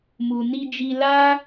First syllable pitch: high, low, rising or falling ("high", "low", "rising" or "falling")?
low